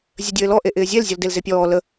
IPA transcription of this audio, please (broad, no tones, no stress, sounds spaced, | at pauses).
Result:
zʲ ə dʲ ɘː l ɔ ʔ e ʔ ɪː zʲ e l zʲ ɔ l d e l z e pʲ ɔː l ə